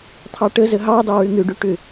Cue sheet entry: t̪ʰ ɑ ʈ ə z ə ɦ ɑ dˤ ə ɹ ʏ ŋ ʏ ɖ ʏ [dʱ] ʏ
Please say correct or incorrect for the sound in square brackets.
incorrect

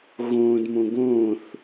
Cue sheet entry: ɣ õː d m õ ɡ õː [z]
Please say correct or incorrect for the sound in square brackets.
incorrect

